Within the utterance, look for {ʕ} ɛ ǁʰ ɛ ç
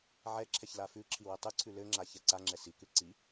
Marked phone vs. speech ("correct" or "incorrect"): correct